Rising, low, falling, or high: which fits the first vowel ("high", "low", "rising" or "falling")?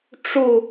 falling